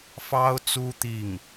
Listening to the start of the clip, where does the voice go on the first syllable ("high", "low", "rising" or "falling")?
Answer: high